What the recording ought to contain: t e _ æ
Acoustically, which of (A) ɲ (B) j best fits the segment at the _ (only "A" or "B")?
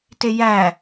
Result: B